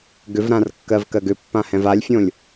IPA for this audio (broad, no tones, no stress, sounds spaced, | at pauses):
ɡ ʏ v ɾ ã r kː ɜ v k ɜ ɡ ʏ pː ã h ɛ̃ v a lʲ fʲ õ lʲ